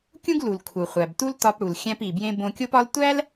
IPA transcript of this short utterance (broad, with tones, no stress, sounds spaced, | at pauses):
kʲ ũ˥ ɡ l u˩ l kʰ u˩ χʷ æ˩ b t u˥ l t ɒ˧ p ɽ u˩ l xʲ æ̃˧ p i˩ b j ẽ˧ b õ˧ kʲ o˥ p ɒ˥ l tʷ æ˥ l